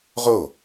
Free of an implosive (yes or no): yes